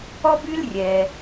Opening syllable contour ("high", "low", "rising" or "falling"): high